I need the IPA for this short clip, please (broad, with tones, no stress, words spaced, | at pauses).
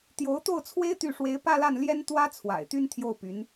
t̪jo˧˥ʊ̯t̪o˥˩ʊ̯t͡sʰwe˥ɪ̯ t̪y˥˩ ʂwe˧˥ɪ̯pä˥˧la˥˩n ljɛ˥nt̪wä˥ t͡sʰwa̰˨˩ɪ̯t̪y˥n t̪ʰjo˥˩ʊ̯py˧˥n